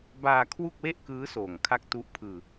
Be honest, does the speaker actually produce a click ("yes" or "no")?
no